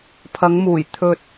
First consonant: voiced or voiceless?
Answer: voiceless